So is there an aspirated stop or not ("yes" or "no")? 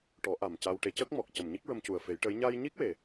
no